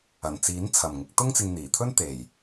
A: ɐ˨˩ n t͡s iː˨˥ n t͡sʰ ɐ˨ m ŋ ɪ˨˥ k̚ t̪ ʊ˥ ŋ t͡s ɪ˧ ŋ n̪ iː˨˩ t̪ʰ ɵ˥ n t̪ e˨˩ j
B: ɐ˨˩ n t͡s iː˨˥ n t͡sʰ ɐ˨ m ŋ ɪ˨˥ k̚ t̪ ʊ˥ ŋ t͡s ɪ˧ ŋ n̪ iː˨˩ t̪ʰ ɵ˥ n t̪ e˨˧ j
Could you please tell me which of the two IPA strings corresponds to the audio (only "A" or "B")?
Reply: A